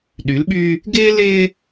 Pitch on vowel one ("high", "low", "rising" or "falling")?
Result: rising